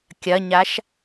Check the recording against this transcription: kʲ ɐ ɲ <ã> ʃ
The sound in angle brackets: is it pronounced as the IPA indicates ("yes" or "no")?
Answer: no